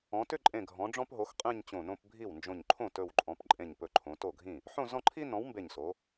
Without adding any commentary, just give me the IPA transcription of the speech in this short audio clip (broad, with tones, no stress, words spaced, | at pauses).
ɔ̃˩˧tʏ˥˧ǃʼẽ˧˩ɡʱɔ̃˩˧ ɖ͡ʐɔ̃˥pɦo˨˥xqʼẽ˥˧ɲ t͡ɕõ˧˩nõ˥˧pbʱi˥˩w nd͡ʒõ˧˩ɲǃʰõ˥˩ tɵ˧˩wǃʼɔ̃˩˧p ǃʼẽ˧˩ɲ pɵ˧˩ǃʰõ˩˧to˥˩ɡʱĩ˥˩ | ħõ˥˧zɔ̃˥˧ǃʰi˥ nɔ̃˨˥wmbe˧˩ɲso˩˧